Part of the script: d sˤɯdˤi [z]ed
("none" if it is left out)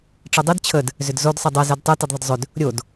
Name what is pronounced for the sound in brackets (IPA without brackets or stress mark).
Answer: z